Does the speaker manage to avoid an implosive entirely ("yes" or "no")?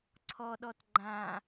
no